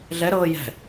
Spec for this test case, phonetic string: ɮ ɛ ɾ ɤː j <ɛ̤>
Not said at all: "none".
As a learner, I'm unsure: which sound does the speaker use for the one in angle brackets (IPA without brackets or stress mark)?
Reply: ɛ̤